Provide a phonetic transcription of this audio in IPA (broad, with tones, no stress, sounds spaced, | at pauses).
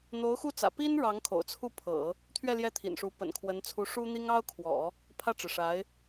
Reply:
n̪ o˧˥ ʊ̯ x u˥˩ t͡s ä̰˨˩ p i˥ n ɻ ɑ˧˥ ŋ kʰ o̰˨˩ ʊ̯ t͡sʰ u˥˩ pʰ ɤ̰˨˩˦ | t̪ʰ ɥ ɛ˥˧ l j ɛ˥˩ t̪ʰ ḭ˨˩ n ʂ u˧˥ p ə̰˨˩ n kʰ w ə˧˥ n t͡sʰ u˧˥ ʂ u˥ n̪ i˥ ŋ ɑ˥ ʊ̯ kʰ w ɔ̰˨˩˦ | pʰ ä˥˩ ʈ͡ʂ ɻ̩˩ ʂ a˧˥ ɪ̯